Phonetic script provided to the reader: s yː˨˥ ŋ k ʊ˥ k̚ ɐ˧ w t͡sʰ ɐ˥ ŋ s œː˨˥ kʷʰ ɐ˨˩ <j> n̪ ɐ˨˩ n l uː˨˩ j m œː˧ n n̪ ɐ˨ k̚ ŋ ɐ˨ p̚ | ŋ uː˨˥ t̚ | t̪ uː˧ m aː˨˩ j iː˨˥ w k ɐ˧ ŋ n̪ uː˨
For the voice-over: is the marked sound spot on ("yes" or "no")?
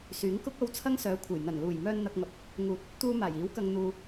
yes